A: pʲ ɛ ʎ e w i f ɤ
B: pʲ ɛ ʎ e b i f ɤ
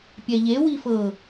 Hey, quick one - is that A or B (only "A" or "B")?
A